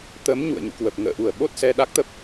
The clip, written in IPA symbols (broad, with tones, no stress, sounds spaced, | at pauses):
t̪ ə˨˦ m ɲ ṵ˧˨ ə̯ ɲ ṵ˧˨ k w ə˨˩ p̚ ŋ ə̰ː˧˨ ʔ u˧˩ ə̯ ɓ o˦˥ t̚ s ɛ˧ ɗ a˦˥ k̚ t̪ ə˦˥ p̚